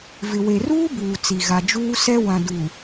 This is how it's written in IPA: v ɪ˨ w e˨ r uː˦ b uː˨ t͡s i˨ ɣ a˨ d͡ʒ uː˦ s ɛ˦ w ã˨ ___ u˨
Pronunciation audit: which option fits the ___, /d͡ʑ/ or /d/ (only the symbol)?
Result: d